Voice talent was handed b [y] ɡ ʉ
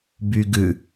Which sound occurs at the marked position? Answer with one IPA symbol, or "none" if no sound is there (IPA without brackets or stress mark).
y